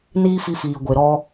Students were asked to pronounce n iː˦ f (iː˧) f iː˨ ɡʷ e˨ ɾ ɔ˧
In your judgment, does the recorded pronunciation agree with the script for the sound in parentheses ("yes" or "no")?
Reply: no